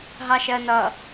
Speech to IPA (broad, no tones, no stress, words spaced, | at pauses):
ɦɑʃɜnʌ